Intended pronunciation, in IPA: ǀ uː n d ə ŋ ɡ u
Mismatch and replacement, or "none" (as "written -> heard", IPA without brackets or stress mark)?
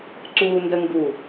none